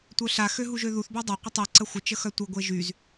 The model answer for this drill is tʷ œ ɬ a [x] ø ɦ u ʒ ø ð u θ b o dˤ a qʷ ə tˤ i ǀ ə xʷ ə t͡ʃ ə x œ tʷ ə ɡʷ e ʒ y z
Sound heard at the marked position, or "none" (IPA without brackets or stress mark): x